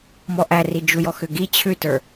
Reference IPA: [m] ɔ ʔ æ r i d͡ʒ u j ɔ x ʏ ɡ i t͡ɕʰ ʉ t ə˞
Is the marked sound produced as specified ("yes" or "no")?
yes